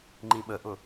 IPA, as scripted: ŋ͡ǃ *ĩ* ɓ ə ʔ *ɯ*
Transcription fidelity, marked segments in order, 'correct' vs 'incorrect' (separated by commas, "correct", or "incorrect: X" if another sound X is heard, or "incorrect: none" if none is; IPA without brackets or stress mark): correct, incorrect: ʊ